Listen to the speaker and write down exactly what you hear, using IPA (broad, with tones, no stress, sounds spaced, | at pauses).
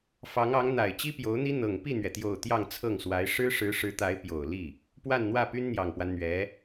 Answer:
f ɑ˧˥ ŋ ɑ˧˥ ŋ n̪ a˨˩ ɪ̯ t͡ɕ i˥ p j o˧˥ ʊ̯ n̪ i˥ n̪ ɤ˨˩ ŋ p i˥˩ n̪ ɥ ɛ˩ t̪ j o˨˩ ʊ̯ t̪ j ɑ˥˧ ŋ t͡sʰ ɤ˥˩ ŋ s w a˧˥ ɪ̯ ʂ ɻ̩˥ ʂ ɻ̩˧˥ ʂ ɻ̩˧˥ t̪ a˧˥ ɪ̯ p j o˨˩ ʊ̯ l i˥˩ | p w a˥˧ n n̪ w ä˥˩ p y˥ n n̪ j ɑ˨˩ ŋ p w a˦ n n̪ ɥ ɛ˧˥